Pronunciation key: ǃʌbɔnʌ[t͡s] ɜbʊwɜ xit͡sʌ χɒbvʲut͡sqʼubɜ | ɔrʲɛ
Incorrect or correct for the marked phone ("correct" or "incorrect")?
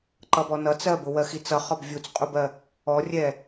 correct